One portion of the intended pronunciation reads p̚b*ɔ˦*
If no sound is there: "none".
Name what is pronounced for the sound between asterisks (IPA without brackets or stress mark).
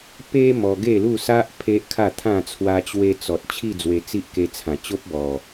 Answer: ɔ˨˩